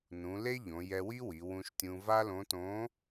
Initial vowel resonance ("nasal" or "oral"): nasal